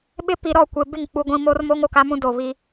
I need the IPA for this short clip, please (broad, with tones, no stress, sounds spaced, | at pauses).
ɓ ɪ˦ p i˨ ɾ ɔ˦˨ kʷ e˨ b ɪ˦˨ ŋ k͡p u˨ ɡʷ ĩ˨ m o˦ r m o˦ ŋ o˨ k a˦ m ũ˦ d o˨ β i˦